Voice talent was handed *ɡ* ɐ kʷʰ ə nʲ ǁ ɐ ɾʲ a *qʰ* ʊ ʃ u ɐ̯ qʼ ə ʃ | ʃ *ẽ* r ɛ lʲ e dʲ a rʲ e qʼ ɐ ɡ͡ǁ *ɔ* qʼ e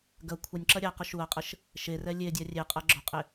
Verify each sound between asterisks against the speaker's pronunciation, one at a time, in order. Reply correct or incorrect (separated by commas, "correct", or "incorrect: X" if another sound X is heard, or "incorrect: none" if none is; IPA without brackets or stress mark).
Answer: correct, incorrect: q, incorrect: e, correct